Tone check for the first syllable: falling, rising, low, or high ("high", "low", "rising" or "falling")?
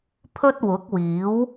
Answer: high